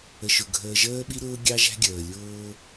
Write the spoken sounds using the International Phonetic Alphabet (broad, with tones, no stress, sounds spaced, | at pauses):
ə˨ ʃ ʊ˨ ɡʱ əː˨ ʒ əː˦ ɓ i˦ ɾ ʊː˦ ɡʲ ɑ˦ ʒ æ̤˦ ɡʲ əː˨ lʲ ʊː˦